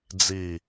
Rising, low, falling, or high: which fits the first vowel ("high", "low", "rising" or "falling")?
falling